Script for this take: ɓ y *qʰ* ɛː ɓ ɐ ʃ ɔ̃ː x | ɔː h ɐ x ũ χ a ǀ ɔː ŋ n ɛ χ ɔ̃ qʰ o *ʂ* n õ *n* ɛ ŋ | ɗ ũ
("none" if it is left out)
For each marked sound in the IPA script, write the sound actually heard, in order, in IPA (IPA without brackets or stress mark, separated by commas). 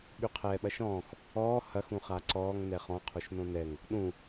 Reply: qʰ, ʃ, n